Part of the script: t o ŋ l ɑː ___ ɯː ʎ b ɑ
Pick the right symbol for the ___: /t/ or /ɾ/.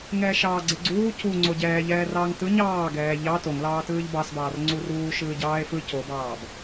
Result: t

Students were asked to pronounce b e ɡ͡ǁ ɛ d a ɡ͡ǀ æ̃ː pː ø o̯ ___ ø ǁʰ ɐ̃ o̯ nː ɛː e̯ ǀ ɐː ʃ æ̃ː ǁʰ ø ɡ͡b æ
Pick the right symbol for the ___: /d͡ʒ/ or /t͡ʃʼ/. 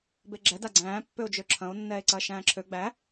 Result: d͡ʒ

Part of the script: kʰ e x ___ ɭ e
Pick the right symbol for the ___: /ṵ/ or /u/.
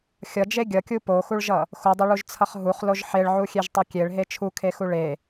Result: u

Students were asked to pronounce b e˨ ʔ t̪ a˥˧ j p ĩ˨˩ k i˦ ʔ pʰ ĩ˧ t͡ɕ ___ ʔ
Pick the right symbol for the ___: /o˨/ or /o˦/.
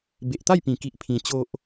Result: o˦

